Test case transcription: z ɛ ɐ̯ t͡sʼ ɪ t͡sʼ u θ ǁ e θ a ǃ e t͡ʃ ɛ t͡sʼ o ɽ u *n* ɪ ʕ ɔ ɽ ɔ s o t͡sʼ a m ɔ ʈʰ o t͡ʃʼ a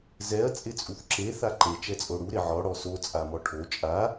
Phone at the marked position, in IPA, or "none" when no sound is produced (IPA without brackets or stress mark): ɾ